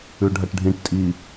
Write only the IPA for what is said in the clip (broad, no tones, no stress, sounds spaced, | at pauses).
ʉ ɖʱ ɐ ʈ ɖʱ ĩ ʈ tʼ i